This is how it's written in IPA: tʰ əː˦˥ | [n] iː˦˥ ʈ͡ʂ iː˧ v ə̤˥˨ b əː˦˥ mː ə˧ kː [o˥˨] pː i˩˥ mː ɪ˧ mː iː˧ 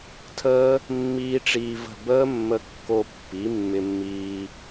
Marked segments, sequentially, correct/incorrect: incorrect, incorrect

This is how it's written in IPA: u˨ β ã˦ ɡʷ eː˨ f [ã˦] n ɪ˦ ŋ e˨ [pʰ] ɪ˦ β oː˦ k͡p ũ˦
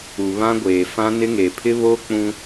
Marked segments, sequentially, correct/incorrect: correct, correct

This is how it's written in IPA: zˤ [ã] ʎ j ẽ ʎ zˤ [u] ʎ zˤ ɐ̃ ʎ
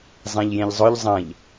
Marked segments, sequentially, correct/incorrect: correct, incorrect

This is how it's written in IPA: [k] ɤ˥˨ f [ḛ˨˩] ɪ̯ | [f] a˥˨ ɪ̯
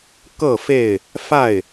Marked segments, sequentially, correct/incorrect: correct, incorrect, correct

